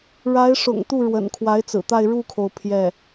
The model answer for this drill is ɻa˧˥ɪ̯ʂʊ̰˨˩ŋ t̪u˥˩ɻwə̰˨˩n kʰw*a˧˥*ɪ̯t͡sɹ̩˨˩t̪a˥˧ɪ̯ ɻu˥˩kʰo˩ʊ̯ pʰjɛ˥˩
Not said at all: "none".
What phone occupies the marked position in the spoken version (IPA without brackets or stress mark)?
a˧˥